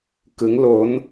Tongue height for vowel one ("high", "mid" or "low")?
high